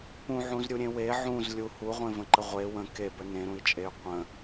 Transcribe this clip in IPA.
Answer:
p ũ ʕ ũ z ɾʲ u ɾʲ ẽ w e ʕ ũ z lʲ u h u ʁʷ ẽ v ə̃ ǃ ə ʁʷ e w ə̃ k e b ə n ẽ ɾ ũ i̯ t͡ʃʼ e y̯ qʷ ə̃

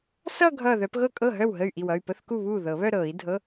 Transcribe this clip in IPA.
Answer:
s ʌ˥˧ ɡʱ ʌː˧˩ ð œ˨˩˦ p ɣ ɤ˥˩ kʼ ɤ˥˩ ɦ œ˥˩ w ɦ ə˥˩ y̯ ʔ i˧˩ w ʌ˥˩ y̯ p ə˧˥˧ θ k u˥˩ β uː˥˩ ð ɤ˨˩˦ β œ˥˧ ɾ ɤː˨˩˦ i̯ dʱ ɤ˧˥˧

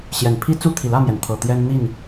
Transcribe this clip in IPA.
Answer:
ɕ j ɛ˨˩ n pʰ i˦ t͡s u˥˨ t̪ʰ i˨˩ l ä˥˨ m j ɛ˩ n t̪ʰ ɤ˨˩ t̪ j ɛ˦ n n̪ i˥˨ n

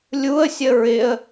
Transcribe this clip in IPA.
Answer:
lʲ u ə̯ sʲ ə ɹ ɪ ə̯

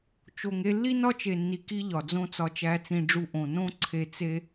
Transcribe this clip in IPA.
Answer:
t͡ʃ o˨ ŋ e˧ lː i˦ n ɒ˦ t͡ʃ e˨ nː i˨ k i˦ ʎ ɒ˨ d͡z õ˦ t͡s ɒ˧ t͡ʃ æ˧ t͡s ĩ˧ ɖ͡ʐ u˧ ʔ õ˨ n õ˦ ǀʰ e˧ t͡s e˦

